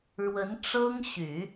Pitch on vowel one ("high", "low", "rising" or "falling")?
rising